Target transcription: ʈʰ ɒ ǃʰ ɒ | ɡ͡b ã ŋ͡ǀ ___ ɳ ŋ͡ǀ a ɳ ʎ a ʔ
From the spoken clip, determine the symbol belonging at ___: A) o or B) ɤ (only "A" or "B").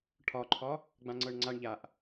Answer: B